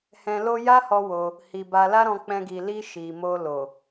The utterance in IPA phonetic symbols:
h ɛ̃˧ l o˦ j a˦ h ɔ˧ w o˧ | h i˨ b a˧ l a˦ ɾ ɔ̃˧ k͡p ɛ̃˧ ɡ i˨ l i˧ ʃ i˨ m o˧ l o˨

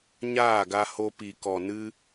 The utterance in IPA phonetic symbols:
ɲ aː˦˨ ɡ a˧ h o˧ p i˨ k ɔ˨ n ɨ˦

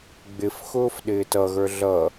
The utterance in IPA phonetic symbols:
ɡ͡b ɪ f x ʊː f ɗ ɪː t ʌ ɣ ə˞ ɮ ʌ

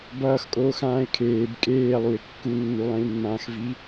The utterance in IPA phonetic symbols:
b ʌː x kʼ oː x ãː ɪ̯ kʰ eː b kʼ eː lˠ u ɪ̯ kː u nː u lˠ ẽ l mː ãː x v i

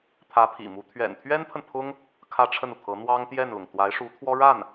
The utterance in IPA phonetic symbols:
t̪ʰ ä˧˥ pʰ ḭ˨˩ m u˧˥ t̪ʰ ɥ ɛ̰˨˩ n t̪ʰ ɥ ɛ˥ n pʰ ə˨ n pʰ ʊ˥ ŋ | kʰ ä˥ ʈ͡ʂʰ ə˥˩ n u˩ t̪ʰ ɤ˧˥ n̪ w ɑ˥ ŋ t̪ j ɛ˥˩ n l ʊ˩ ŋ t̪ w a˧˥ ɪ̯ ʂ u˧˥ t̪ʰ w ɔ˥ ɻ a˥˩ n

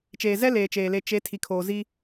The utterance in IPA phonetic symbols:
t͡ʃ eː˨ z ɛ˦ l eː˨ t͡ʃ eː˨ l e˨ t͡ʃ e˨˦ tʰ i˨ kʰ oː˨ z i˦

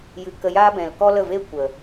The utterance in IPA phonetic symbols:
j ɨ˨ k ə˧ j aː˦ b ɛ̃˨ l k ɔ˦ l ə˦˨ v e˦ kʷ ə˨

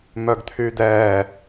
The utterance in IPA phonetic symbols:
m œ ɡ t̪ʰ yː d̪ ɛː

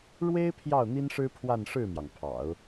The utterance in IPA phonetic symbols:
ɻ w e˥ ɪ̯ pʰ j ɑ˥˩ ʊ̯ n̪ i˥ n ʂ ɻ̩˥ pʰ w a˥˧ n ʂ ɻ̩˥˩ m j ɑ˩ ŋ pʰ ɑ̰˨˩˦ ʊ̯

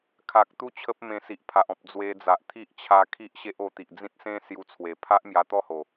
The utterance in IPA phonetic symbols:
kʰ a˨ k̚ t̪ u˦ t͡ɕʰ ə˦ p̚ m ẽ˧ s i˨ ʔ pʰ a˨ ʔ ɔ̃˨ p̚ d͡z w e˧ d͡z a˨ ʔ t̪ʰ i˦ ʔ t͡ɕʰ a˧ kʰ i˦ ʔ ɕ e˦ ʔ o˧ t̪ i˨ ʔ d͡z ĩ˦ t̚ s ẽ˦ s j u˧ t͡sʰ w e˨˩ pʰ a˦ ʔ m j a˧ t̪ ɔ˥˧ h o˨˩

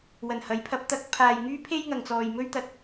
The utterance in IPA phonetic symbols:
w ɐ˨˩ n h ɐ˨˥ j pʰ ɐ˨˥ p̚ t̪ ɐ˧ k̚ pʰ aː˨ j ŋ yː˥ pʰ e˥ j ŋ ɐ˨ ŋ t͡s ɔː˨ j m ɵ˥ ɥ t̪ ɐ˧ t̚

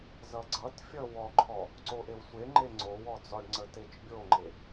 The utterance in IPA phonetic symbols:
z ʌ ɡ͡ǀ ʌ t fʲ ʌ w ɔ ǃʰ ɔ | ǀ o ʔ e w sʷ e ŋ͡ǃ e ŋ͡ǀ o w ɔ d͡z ɔ ɖ ŋ͡ǀ ə t e t͡ʃ bʲ o ŋ͡ǃ e

